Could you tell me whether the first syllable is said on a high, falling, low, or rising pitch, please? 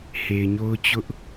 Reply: low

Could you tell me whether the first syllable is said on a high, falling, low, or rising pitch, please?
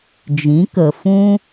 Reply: rising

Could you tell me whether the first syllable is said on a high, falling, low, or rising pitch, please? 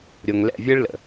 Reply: low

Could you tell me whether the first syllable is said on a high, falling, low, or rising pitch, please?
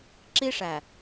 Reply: high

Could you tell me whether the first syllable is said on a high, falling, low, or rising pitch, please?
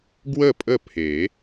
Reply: falling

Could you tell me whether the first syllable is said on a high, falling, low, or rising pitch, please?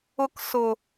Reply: high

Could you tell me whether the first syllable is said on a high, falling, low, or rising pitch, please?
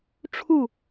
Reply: falling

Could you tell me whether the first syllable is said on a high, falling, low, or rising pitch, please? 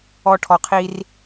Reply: low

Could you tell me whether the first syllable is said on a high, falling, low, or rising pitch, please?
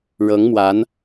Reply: rising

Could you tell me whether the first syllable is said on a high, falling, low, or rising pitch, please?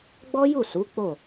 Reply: high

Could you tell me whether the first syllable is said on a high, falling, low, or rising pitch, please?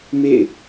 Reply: falling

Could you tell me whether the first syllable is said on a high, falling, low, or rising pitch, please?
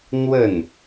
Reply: falling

